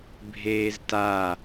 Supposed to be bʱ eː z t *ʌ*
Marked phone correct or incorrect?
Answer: incorrect